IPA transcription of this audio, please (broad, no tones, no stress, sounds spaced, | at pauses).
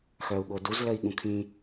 x œ u̯ ɠ o d u z l ə i̯ ɠ ũ kʰ ĩ